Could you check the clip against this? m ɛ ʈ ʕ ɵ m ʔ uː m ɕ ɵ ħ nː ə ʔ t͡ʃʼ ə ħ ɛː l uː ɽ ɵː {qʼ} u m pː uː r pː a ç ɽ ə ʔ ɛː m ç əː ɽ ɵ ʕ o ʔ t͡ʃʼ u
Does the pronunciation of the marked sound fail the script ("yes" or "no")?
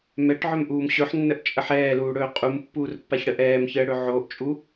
no